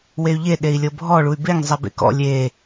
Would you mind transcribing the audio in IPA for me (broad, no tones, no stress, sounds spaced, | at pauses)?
w e y̯ ʎ e ɗ e i̯ lʲ ɤ bʱ ɔ ɭ u y̯ b e ŋ zˤ e b ḛ k ɔ̰ lʲ e